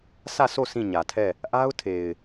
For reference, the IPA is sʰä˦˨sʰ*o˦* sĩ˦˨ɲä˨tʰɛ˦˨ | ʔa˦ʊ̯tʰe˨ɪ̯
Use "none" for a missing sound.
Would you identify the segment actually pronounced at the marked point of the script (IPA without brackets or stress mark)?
o˦˨